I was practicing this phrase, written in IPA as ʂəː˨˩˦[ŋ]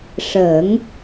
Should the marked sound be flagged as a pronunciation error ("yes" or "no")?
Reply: no